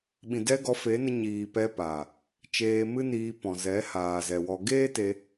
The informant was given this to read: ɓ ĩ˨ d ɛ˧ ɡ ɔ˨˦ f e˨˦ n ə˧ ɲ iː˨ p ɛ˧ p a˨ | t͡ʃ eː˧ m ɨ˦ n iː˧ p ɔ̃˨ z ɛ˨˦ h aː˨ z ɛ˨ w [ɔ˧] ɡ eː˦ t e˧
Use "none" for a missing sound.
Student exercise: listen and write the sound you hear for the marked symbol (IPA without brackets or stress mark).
ɔ˧